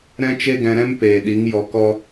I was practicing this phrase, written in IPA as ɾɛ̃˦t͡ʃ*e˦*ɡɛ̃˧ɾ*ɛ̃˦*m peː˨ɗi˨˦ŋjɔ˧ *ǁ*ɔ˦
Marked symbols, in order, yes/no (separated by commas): yes, yes, no